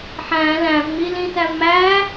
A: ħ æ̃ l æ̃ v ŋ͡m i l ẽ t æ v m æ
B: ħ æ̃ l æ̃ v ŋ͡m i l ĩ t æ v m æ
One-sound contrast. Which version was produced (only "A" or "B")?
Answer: B